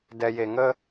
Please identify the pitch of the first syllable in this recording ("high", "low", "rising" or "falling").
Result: low